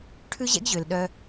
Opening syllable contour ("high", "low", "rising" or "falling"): high